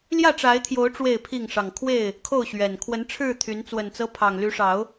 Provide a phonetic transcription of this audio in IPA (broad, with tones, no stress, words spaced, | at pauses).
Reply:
ljä˥˨ʈ͡ʂa˨˦ɪ̯t̪ʰjo˨˦ʊ̯ ʈ͡ʂwe˥˨ɪ̯pʰi˥˨ŋ ʂɑ˨˩ŋkʰwe˥˨ɪ̯ | kʰo˥˨ʊ̯ɕɥɛ˨˩n kʰwə˨˦n ʈ͡ʂʰɻ̩˥˨t̪ʰy˨˦n t͡swə˨˩nt͡sɤ˦ pʰɑ˨˩ŋly˨˦ʂɑ˨˦ʊ̯